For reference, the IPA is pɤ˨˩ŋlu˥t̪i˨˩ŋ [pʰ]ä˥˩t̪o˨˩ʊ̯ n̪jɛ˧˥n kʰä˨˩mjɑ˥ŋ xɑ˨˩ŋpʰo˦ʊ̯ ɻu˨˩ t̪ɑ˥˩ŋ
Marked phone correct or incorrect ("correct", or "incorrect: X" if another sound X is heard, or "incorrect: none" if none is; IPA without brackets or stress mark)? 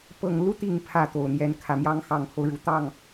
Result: correct